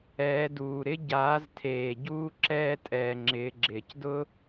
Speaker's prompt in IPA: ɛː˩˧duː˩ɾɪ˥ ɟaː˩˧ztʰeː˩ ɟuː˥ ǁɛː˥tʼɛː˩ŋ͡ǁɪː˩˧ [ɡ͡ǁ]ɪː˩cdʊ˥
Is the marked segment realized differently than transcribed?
no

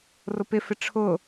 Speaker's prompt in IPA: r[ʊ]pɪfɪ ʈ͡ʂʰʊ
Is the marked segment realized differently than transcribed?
no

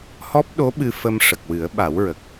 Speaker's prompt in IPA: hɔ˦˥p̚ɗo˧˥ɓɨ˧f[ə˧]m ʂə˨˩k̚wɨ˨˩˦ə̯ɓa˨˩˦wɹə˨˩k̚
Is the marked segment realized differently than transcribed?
no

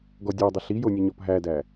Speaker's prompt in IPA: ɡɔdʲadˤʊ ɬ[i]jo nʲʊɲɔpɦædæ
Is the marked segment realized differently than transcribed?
no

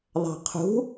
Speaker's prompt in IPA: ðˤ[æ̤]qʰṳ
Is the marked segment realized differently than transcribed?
no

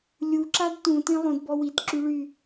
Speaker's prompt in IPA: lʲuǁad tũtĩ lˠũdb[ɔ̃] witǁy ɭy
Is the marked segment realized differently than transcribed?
yes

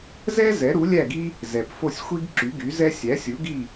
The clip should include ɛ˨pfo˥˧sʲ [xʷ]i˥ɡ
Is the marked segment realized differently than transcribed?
no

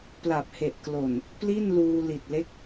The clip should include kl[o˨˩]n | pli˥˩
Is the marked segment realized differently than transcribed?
no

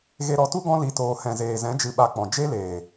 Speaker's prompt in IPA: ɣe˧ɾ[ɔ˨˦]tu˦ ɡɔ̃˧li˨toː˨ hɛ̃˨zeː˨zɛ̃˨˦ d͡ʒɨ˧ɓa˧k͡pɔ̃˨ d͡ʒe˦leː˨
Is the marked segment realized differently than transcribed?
no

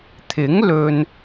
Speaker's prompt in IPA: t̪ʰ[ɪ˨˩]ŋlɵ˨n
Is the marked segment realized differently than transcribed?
yes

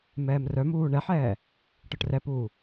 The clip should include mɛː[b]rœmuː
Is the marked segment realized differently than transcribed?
yes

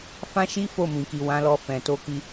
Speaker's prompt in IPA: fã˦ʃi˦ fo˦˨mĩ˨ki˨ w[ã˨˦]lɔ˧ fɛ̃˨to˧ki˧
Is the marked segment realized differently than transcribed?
no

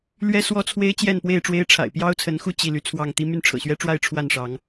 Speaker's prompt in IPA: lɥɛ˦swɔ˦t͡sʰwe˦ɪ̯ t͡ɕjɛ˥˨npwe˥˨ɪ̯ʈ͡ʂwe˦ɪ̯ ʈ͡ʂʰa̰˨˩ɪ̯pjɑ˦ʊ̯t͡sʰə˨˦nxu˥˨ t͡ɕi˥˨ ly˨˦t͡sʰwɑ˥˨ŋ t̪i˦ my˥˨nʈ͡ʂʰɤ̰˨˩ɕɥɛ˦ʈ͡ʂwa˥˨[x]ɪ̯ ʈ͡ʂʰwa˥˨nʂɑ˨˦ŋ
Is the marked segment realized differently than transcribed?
yes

